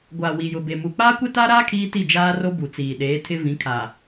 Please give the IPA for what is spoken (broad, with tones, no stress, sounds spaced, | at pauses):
ɡʷ a˨ w i˨ j ʊ˨ b e˨ m u˨ k͡p aː˦ kʷ e˦ t aː˦ ɾ aː˦ kʰ iː˦ t i˦˨ d͡ʒ aː˦ r o˦ b u˨ t͡s iː˨ ɗ eː˨˦ tʰ ɪ˦ v ĩ˨˦ kʰ a˨